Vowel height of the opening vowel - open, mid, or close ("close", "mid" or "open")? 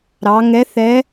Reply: open